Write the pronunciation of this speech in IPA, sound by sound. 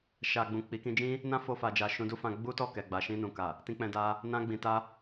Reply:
ʃ a˨ ɡ͡b ũ˨ k͡p i˨˦ k ĩ˧ d͡ʒ ĩ˦ | n ã˦ f o˧ f a˨ d͡ʒ a˨ ʃ ũ˧ d u˦ f ã˧ ɡ͡b u˦ t ɔ˦˨ k ɛ˨ ɡ͡b a˨ ʃ ĩ˧ n ũ˨ k a˨ | t ĩ˧ k͡p ɛ̃˧ d a˧ | n ã˧ ɡ͡b ĩ˨ t a˧

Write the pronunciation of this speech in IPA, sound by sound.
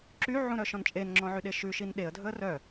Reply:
ǁ y ʕ ũ ɾ œ ʃ ɔ̃ n t͡ʃʼ e n ŋ͡ǁ ɔ̃ ʕ y ɗ e ʃ ʉ ʃ i n ɗ e ə̯ dʱ ɵ ə̯ r œ

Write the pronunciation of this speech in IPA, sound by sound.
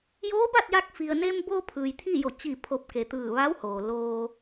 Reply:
j oː˧˥ b a˥˨ t̚ j a˧ k̚ f i˩ ə̯ n e˧ m b oː˧ pʰ ɯː˩ j t̪ʰ iː˥˨ j o˧˩ t͡ɕ i˧˩ pʰ o˧˩ p̚ k e˩ t̪ ɯː˧˩ ʋ a˧˥ w h oː˩ l oː˧

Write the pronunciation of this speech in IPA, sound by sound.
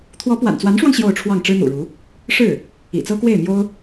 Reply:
t̪ʰ w ɔ˧˥ p w a̰˨˩ n t͡s w a˧˥ n ʂ w ɑ˧ ŋ ɕ j o˥˧ ʊ̯ ʈ͡ʂʰ w ɑ˥˩ ŋ ʈ͡ʂ ɻ̩˥ n̪ ṵ˨˩ ɻ u˧˥ | ʂ ɻ̩˥˩ | ḭ˨˩ t͡s ɤ˥ k w e˥˩ ɪ̯ m j o˥ ʊ̯

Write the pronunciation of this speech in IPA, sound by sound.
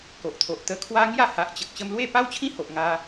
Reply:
k o˨ ʔ t̪ʰ o˨ ʔ t̪ ə˧ kʰ w a˦ ŋ j a˥˧ h a˨ ʔ t͡ɕ ə˨ k̚ ɕ ə˧ m l w e˥˧ p a˦ w t͡ɕʰ ĩ˦ h o˨ ʔ ŋ a˧

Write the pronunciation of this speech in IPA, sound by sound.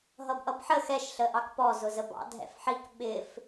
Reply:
ɦ ʌ b ʔ ʌ b ħ ə x ɛ ʃ ɬ ə ʔ ɑ k p ɔ z ʊ z ə b ɑ̰ dʱ ɛ̰ f ħ i k ɓ ɪ f

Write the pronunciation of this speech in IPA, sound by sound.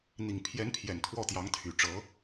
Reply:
n̪ i˨˩ ŋ pʰ j ɛ˧˥ n pʰ j ɛ˨˩ n t̪ʰ w ɔ˥˩ t̪ j ɑ˧˥ ŋ t̪ʰ y˨˩ ʈ͡ʂ ɤ˧˥

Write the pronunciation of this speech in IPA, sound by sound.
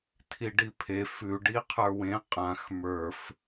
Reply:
tʰ i ɖ i pʰ e f ʉ ɖ i qʰ ə˞ w ẽ qʼ ã x m ə˞ f

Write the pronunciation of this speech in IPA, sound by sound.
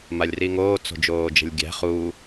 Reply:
m a lʲ r i ŋ oː t͡s o̤ d͡ʒ oː d͡ʒ ə̤ lʲ ɡʲ æ̤ χ u

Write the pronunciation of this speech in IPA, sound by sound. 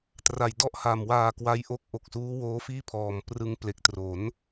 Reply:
t r a˨˩ j d ɔ˥˩ ʔ h a˨˩ m w aː˧ k w a˦˥ j ʔ o˦˥ k̚ ʔ o˨˩ k̚ s uː˦˥ w oː˦˥ f iː˥˩ pʰ ɔː˨˩ m p r ɯ˧ ŋ p l e˨˩ k̚ t r o˩˦ n

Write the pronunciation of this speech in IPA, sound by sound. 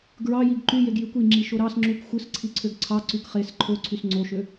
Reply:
ɡ ɹ ɑ j i ɡ ǃ y j e ɡ j y kʷ i ŋ͡ǁ i ʃ o ɾ ɑ s ŋ͡ǁ u k xʷ ɯ s ǀʰ i ǀʰ ø ɡ ǀʰ ɑ ǀ y k χ e s ǃʰ o ǀʰ y s ŋ͡ǀ o ʃ ø

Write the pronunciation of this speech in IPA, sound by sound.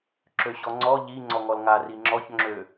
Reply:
ǁ ø ɕ ɔ ŋ͡ǀ ɔ ʎ i ŋ͡ǀ ɔ ŋ ɔ l ŋ a r i ŋ͡ǁ ɔ ç ŋ͡ǁ ø

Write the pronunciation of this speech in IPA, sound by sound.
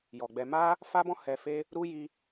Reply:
j ɔ˨ ɡ͡b ɛ˧ m a˦ | f a˦ b ɔ̃˦ h ɛ˧ f e˦ | ɾ u˦ j i˧

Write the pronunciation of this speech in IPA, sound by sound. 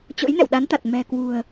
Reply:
t͡ɕ o̰˧˥ j n ɛ̰˧˨ w ɗ a˨˦ n t̪ a˨˩ t̚ m ɛ̤˨˩ k w ṳ˨˩ ə̯

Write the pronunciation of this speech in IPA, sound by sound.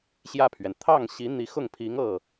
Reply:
ɕ j ä˥˩ pʰ ɥ ɛ˩ n t̪ʰ ɑ˥˩ ŋ ɕ i˧˥ n̪ i˧˥ x ʊ˥˩ ŋ pʰ i˧˥ ŋ ɤ˥˩

